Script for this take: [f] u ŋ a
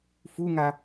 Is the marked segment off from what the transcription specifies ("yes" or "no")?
no